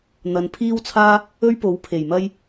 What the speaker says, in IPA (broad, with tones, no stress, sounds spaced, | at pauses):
n̪ ɐ˨ n pʰ iː˥ w t͡sʰ aː˥ | ɵ˥ ɥ p o˨˥ w pʰ e˨˩ j m ɐ˥ j